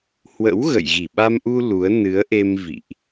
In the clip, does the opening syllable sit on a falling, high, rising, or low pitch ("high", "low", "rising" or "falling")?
rising